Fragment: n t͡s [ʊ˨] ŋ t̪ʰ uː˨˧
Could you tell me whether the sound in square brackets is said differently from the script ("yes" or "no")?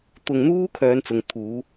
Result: no